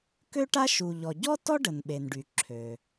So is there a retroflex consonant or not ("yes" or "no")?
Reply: yes